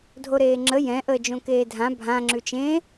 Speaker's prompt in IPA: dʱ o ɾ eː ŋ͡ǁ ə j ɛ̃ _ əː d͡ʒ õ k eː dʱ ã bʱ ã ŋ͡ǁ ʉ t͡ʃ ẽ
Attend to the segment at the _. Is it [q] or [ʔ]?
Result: ʔ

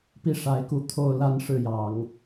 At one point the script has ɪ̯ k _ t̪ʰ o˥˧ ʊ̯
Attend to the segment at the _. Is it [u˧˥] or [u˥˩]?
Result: u˧˥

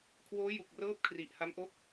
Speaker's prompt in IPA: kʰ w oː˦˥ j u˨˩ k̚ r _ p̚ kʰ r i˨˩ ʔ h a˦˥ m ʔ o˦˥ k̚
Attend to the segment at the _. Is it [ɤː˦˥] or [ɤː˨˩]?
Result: ɤː˦˥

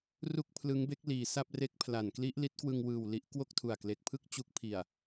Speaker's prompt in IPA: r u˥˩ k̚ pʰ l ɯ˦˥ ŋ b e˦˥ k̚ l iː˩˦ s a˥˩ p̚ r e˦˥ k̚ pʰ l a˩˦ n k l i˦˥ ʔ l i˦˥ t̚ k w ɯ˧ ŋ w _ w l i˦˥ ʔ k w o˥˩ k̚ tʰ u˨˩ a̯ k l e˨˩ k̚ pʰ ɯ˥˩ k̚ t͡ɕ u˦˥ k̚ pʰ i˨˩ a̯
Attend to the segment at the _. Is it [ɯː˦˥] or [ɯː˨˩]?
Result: ɯː˨˩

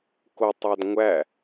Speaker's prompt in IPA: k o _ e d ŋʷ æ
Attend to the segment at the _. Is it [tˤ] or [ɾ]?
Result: tˤ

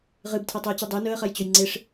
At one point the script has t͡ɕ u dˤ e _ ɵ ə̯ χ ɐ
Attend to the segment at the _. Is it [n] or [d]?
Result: n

